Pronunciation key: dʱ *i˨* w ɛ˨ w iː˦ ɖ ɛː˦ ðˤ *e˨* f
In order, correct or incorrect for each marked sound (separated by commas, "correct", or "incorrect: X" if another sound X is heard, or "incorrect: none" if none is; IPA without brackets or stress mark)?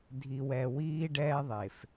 correct, correct